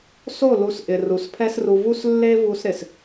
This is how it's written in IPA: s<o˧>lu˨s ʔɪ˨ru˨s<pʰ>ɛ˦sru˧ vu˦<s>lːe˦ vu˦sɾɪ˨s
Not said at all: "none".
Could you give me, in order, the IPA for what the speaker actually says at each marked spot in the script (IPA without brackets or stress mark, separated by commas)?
o˦˨, pʰ, s